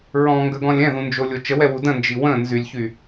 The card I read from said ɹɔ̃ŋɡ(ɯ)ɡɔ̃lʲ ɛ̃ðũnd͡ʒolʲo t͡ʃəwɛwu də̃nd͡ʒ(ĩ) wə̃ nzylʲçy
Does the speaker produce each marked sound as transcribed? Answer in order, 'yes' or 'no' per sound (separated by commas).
no, no